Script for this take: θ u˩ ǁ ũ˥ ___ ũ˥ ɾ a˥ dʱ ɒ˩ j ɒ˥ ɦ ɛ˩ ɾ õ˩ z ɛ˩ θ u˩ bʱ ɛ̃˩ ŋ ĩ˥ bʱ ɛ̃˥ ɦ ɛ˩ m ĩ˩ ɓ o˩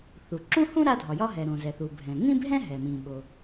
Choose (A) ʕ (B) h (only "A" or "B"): B